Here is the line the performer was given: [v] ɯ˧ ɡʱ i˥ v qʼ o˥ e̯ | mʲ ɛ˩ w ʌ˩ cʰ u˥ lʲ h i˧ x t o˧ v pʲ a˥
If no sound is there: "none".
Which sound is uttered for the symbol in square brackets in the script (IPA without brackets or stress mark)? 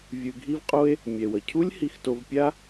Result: vʲ